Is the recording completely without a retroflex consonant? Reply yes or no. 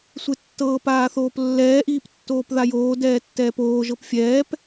yes